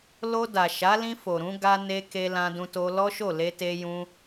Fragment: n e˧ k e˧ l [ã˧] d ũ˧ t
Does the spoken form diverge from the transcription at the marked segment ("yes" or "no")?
no